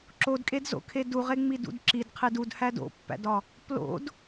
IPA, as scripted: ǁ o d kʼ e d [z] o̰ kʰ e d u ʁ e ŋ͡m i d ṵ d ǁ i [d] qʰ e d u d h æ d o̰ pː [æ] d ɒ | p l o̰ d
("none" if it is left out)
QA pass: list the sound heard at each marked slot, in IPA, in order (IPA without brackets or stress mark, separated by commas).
z, d, æ̰